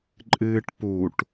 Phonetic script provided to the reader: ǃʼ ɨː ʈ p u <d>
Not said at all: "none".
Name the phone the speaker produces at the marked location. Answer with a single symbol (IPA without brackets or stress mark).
ʈ